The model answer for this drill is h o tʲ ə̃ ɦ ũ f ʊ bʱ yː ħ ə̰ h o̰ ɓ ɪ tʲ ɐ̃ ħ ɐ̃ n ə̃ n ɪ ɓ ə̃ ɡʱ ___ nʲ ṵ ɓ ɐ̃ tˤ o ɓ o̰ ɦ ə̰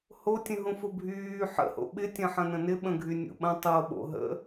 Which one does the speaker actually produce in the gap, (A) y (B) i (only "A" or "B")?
A